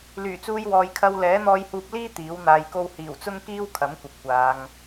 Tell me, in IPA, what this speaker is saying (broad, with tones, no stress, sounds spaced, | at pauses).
l yː˨˩ t͡s uː˧ j w ɔː˨ j kʰ ɐ˧ w l ɛː˨˥ n̪ ɔː˧ j h uː˧ p̚ l iː˥ t̪ iː˨˥ w n̪ aː˧ j k o˥ w h iː˨˩ w t͡s ʊ˥ ŋ k iː˥ w kʰ ɐ˨˥ m kʷ ɐ˨ p̚ kʷ aː˨˧ ŋ